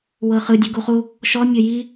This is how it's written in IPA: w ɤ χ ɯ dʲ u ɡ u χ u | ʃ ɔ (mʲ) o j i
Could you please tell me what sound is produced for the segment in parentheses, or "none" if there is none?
mʲ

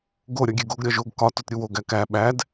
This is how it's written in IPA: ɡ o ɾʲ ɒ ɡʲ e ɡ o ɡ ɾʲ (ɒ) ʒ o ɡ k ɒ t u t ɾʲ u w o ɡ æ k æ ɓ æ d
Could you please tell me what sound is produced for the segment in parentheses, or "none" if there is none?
ɒ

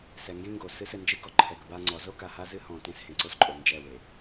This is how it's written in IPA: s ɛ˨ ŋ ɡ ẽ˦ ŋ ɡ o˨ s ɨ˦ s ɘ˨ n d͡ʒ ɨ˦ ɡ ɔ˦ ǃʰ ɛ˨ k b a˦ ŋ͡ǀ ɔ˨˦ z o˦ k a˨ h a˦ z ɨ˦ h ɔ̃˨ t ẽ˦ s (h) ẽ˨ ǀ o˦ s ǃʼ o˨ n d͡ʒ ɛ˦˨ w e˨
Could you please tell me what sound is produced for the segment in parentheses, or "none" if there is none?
h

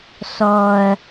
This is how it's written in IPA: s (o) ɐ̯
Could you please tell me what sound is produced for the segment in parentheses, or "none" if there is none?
ɔ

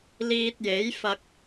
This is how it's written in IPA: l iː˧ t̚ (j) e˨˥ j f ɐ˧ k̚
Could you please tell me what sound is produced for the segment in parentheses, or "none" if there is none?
j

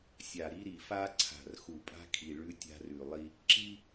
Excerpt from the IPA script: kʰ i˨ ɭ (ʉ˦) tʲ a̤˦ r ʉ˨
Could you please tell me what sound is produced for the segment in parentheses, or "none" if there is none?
ʉ˦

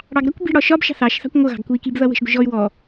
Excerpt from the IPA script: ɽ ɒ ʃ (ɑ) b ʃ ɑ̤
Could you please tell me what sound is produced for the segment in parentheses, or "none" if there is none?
ɒ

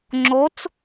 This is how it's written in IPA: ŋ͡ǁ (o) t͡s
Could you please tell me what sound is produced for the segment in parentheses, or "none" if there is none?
o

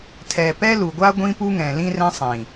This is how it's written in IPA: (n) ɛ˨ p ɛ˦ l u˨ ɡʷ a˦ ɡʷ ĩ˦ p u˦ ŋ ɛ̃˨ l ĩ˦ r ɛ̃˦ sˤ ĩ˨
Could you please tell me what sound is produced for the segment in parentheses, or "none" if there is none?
tʰ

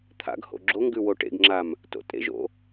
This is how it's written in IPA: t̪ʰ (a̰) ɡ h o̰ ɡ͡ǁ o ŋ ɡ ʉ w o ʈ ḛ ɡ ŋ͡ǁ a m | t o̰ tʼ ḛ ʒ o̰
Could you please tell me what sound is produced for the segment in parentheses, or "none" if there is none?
a̰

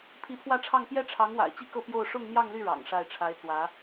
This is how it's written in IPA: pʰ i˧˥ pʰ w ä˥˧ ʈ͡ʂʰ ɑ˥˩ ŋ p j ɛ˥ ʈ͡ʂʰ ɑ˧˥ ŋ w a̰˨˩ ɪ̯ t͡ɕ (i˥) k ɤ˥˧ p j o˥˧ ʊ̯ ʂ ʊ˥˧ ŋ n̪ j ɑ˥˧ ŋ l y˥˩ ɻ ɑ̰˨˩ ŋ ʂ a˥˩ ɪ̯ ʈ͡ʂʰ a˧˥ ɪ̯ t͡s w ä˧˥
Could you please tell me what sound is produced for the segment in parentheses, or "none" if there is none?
i˥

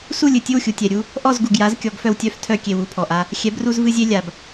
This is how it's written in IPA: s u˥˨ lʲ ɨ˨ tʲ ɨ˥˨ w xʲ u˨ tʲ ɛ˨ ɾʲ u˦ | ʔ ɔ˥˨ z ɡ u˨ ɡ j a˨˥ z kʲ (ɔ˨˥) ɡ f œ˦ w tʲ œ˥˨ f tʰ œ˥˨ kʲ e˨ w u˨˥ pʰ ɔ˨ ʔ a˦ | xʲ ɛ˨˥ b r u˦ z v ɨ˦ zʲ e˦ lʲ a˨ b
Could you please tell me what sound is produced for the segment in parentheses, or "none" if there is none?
ɔ˨˥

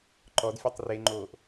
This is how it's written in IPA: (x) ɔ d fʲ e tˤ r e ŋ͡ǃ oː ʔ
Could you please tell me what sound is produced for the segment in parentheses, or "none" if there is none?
ǃ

